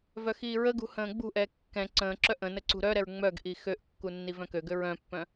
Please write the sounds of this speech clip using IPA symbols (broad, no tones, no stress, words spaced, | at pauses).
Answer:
vœxiːɹəɡṳ hə̃ːɡ͡bṳʔɛ kːɛ̃ ǀə̃ːǁœ ʔə̃nə ǀṳɾœɾɛɹ ŋ͡mœɡʔi xøʔkːu nːivœ̃køɡø ɹœ̃pːœ̃